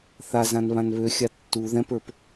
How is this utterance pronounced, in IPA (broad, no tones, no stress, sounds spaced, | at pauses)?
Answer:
θ a z ã n β ã n β ø xʲ a tː u ð ɛ̃ p ə˞ p